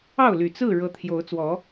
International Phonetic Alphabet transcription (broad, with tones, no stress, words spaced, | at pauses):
ɑ˥˨ʊ̯ly˨˩ t͡sɹ̩˥˨ ɻɤ˨˦t̪ʰjo˨˦ʊ̯ t͡swɔ˨˦